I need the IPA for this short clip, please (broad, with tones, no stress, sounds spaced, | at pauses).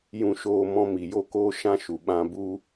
j ũ˨ ʃ oː˨ m ɔ̃˧ m i˨ j o˧ k oː˦ ʃ ã˦ ʃ u˨ ɓ ã˧ b u˦